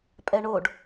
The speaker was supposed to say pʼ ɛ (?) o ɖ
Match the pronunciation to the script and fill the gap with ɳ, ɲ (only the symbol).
ɳ